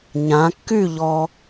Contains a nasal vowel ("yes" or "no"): yes